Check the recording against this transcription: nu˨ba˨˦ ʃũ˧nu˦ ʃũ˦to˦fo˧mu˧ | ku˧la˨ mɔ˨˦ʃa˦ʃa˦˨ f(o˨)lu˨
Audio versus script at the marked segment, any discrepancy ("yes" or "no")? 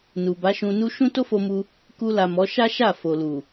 no